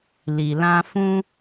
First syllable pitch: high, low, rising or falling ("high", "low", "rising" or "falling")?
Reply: low